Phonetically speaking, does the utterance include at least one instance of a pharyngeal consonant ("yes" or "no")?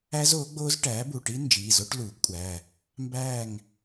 no